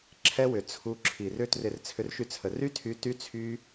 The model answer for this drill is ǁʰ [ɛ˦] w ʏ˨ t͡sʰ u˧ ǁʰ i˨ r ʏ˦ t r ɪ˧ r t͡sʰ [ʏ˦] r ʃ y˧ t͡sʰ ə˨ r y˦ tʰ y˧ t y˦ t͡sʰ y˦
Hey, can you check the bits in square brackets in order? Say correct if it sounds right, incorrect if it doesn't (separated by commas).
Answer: correct, incorrect